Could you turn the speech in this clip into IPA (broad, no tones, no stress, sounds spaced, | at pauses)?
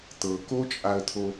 t̪ ɤ k o t͡ʃʼ a ə̯ t̪ʰ o